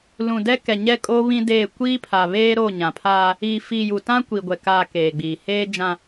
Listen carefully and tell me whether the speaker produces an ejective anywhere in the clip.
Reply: yes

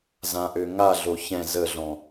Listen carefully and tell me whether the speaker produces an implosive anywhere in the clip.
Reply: no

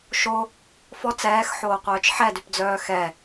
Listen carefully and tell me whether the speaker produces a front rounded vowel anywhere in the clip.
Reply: yes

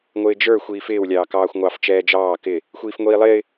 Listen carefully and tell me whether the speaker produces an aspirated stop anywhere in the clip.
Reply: no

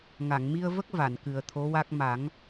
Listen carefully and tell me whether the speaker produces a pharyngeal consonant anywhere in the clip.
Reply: no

